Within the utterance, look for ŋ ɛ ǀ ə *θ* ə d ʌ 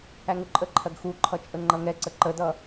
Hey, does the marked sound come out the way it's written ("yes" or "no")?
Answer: no